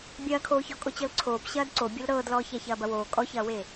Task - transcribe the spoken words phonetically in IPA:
bʲɐːkʰoːçɔ kʼot͡ɕɤlǀʰoːp ɕɐːdǀo bʲɤlɾɤːdlɔː çæçɐːbɐwoː kʼɔçɐːwe

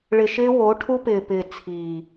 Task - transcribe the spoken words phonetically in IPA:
ɭɪ˨ʃɪː˦ wo˨˦ ʈʰu˦pɪː˨pɪː˨ t͡sʰiː˨

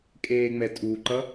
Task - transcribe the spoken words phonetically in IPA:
kʼeːŋ͡mɛtʼuǃʌ

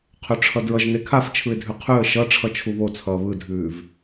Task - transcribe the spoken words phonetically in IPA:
qʰøʈ͡ʂʰʌdɹʌʒne kʰaft͡ʃʰɯɪ̯dʱʉ qʰʉə̯ ʃʌ ʈ͡ʂʰʌt͡ʃʰuβot͡sʰʌː βɯdʱʉːv

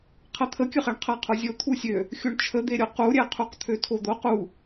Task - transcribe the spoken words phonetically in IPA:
qʰɜt̪ʰəkʲəχɛɳ qʰɜqʰozʲo t̪ʰusʲø | xʲoɳt͡ʃʰəd̪eɾʲo quɾʲɛqʰuq t̪ʰøtʰod̪oq u

